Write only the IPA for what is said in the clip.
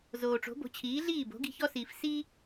z oː˩ ʈ͡ʂ o̤˩˥ b o̤˩˥ t͡ɕʰ iː˩˥ ɮ iː˥˩ b o̤˩˥ ɡ i̤˧ ç ɔ˥ s iː˩ f s i˥

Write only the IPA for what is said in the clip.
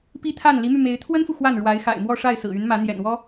p i˥ t̪ʰ a˥˩ n l i˧˥ m y˧ m e˧˥ ɪ̯ t̪ʰ w ə˥ n f u˨ x w a˥˩ n ɻ w a˧˥ ɪ̯ x a̰˨˩ ɪ̯ m w ɔ˥˧ ʂ a˥˩ ɪ̯ s ɹ̩˨˩ y˧˥ n m ä˧˥ n̪ j ɛ̰˨˩ n w ɔ˥

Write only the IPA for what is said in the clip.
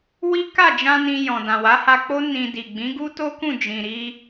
w i˦ k a˦˨ d͡ʒ ã˧ n ĩ˧ j ɔ̃˨ d ã˨ w a˨˦ h a˧ k͡p o˦ n ĩ˧ d i˨ ɡ͡b ĩ˨˦ ɡ u˦ t o˦ k ũ˦˨ d͡ʒ ĩ˨ ɾ i˧

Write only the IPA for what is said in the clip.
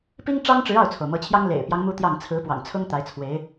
p i˥ ŋ ʈ͡ʂ ɑ˥ ŋ ʈ͡ʂ ɻ̩˧˥ ɑ˥˩ ʊ̯ t͡sʰ o˩ ʊ̯ m ɤ˧˥ t͡ɕʰ j ɑ˥ ŋ l ḛ˨˩ ɪ̯ p j ɑ˦ ŋ m u˥ t̪ j ɑ˥˩ ŋ t͡sʰ ɹ̩˧˥ p w ɑ̰˨˩ ŋ t͡sʰ ʊ˥ ŋ t̪ a˧˥ ɪ̯ t͡sʰ w e˧˥ ɪ̯

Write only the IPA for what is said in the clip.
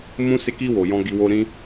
m ũ˧ s e˧ k i˧ w o˨ j ɔ̃˧ ɡ i˧ w o˦ ɾ ĩ˦

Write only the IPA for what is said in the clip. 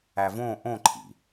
æ v õ ʔ õ ǃʰ ḭ

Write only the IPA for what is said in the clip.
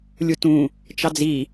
lʲ u t ũ | t͡ʃ ɑ d͡z i

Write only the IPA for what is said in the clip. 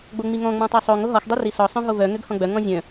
ɡ͡b o ŋ͡m i ŋ ɔ̃ ŋ͡m ɔ̃ tˤ œ sˤ o ŋ o ɦ ɔ x dˤ i r i s ɔ sˤ œ̃ ɦ o v œ ŋ ø ɡ h ɔ̃ ɡ͡b œ ŋ ɔ̃ zʲ œ̃

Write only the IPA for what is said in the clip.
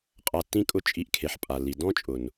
qʼ a˧ tː ĩ˦ kʼ ʊ˦˨ t͡ʃʼ i˧ ʔ kʰ e˨ ħ pʼ a˨ lː i˨ d ɔ̃˦ t͡ʃʼ ʊ˨ n

